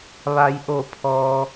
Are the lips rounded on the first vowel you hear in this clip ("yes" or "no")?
no